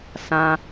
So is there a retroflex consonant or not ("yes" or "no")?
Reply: no